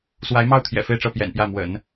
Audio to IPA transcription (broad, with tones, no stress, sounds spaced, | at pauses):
s w a˧˥ ɪ̯ m ɑ˥˩ ʊ̯ t̪ʰ j ɛ̰˨˩ f e˥˧ ɪ̯ ʈ͡ʂ ɤ˥˩ p j ɛ̰˨˩ n p j ä˥˩ m w ə̰˨˩˦ n